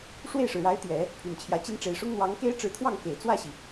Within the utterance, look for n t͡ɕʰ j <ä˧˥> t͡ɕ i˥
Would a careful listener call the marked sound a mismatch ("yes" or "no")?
no